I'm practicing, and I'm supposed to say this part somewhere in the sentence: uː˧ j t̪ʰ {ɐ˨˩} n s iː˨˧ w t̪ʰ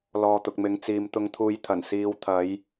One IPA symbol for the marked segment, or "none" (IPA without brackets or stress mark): ɐ˨˩